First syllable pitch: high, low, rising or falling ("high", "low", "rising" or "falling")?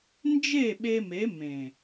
falling